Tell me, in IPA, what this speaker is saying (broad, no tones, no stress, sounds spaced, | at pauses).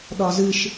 ɗ ɒ z ɨ ʃ